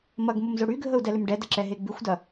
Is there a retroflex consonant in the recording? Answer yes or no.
yes